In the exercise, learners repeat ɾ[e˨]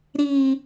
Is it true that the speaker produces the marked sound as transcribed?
no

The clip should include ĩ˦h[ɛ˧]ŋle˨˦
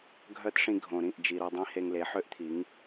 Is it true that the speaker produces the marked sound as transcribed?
no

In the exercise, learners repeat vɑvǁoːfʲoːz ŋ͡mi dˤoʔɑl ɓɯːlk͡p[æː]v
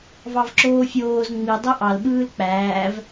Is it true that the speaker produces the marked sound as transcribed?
yes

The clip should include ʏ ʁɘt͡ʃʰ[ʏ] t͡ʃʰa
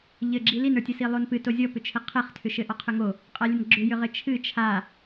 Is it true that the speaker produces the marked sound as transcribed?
no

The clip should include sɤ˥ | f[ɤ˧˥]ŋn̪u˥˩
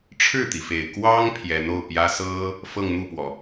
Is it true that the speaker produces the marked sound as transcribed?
no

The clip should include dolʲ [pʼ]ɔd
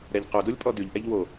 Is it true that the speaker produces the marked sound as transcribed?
yes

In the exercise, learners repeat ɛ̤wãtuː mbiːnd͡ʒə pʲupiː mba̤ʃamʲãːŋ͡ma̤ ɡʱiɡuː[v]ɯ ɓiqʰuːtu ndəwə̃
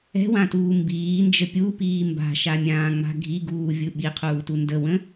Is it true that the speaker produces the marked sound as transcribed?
no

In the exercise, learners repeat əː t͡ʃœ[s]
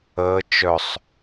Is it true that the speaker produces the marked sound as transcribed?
no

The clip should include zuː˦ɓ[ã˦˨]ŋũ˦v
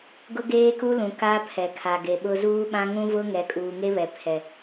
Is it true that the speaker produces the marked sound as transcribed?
no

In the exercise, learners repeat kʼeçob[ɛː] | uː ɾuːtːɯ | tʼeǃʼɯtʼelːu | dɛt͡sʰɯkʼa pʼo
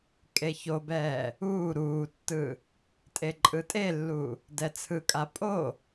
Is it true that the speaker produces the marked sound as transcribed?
yes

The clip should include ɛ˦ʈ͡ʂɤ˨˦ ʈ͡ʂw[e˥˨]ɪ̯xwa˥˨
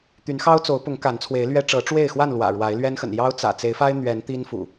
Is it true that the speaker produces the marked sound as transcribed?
yes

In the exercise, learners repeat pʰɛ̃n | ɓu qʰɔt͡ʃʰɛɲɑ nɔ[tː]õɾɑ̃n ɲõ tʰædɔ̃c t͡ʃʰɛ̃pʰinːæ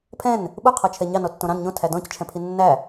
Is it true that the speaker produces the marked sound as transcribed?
yes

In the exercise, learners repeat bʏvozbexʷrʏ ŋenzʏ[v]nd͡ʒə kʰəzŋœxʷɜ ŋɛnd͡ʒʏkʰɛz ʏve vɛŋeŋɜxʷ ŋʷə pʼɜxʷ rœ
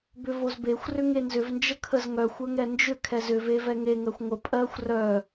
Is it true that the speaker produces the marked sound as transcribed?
yes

